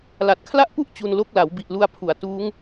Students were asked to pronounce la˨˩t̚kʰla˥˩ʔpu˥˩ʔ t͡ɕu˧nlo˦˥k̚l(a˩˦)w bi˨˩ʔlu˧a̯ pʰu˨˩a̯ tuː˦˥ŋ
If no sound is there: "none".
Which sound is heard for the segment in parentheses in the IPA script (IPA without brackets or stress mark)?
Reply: a˩˦